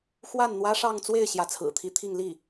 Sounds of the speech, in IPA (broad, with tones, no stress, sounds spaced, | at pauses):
x w a˥˩ n n̪ w ä˥ ʂ ɑ˥˧ ŋ t͡s w e˥˩ ɪ̯ ɕ j ä˧˥ t͡sʰ ɹ̩˨˩ t̪ʰ i˧˥ t̪ʰ i˥˧ ŋ l i˥˩